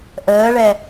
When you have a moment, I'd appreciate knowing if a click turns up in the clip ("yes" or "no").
no